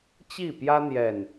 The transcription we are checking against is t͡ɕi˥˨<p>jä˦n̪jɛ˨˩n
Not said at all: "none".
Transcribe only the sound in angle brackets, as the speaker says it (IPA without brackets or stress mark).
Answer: p